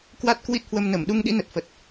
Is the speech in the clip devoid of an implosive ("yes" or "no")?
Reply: no